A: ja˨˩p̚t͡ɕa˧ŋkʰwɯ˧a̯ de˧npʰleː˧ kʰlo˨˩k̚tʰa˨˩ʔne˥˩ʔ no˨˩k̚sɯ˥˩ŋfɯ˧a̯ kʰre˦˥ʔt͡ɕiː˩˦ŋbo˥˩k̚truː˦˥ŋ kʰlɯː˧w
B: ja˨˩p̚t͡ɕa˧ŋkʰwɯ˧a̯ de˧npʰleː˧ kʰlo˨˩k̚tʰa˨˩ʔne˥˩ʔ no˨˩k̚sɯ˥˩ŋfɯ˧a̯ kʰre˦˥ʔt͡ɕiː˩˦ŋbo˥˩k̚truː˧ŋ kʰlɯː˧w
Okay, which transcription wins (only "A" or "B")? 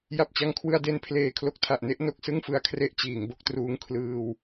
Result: B